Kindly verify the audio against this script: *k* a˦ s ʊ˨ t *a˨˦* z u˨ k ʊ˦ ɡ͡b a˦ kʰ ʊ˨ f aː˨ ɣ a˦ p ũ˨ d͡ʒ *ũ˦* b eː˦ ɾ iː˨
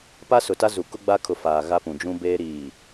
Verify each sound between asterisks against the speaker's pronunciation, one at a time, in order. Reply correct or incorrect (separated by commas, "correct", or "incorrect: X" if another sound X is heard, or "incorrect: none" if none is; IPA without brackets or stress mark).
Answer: incorrect: p, incorrect: a˦, correct